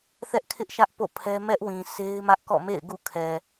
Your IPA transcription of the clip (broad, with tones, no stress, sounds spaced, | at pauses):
θ ɛ˦ ʔ kʰ ɪ˦ ʔ ʃ ä˦ ʔ p o̰˦˨ pʰ ɛ˦ m ɛ˦ ʔ w ĩ˨ sʰ e˦ ɪ̯ m ä˦ ʔ k ɔ̰˦˨ m ḛ˦˨ ɪ̯ ɡ ṵ˦˨ kʰ ɛ˨